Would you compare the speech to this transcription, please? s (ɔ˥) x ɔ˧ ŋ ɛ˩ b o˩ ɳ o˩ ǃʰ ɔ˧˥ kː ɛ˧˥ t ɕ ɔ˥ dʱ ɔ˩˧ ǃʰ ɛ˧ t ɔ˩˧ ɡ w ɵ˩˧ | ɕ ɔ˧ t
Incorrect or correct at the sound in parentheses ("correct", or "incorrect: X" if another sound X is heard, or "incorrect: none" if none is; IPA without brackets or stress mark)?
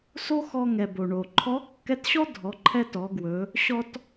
incorrect: o˥